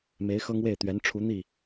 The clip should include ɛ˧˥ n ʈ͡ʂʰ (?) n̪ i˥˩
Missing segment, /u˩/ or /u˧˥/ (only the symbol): u˧˥